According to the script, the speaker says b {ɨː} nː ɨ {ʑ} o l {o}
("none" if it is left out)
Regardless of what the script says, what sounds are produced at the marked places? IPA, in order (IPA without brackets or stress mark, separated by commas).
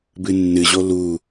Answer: ɨ, ʑ, u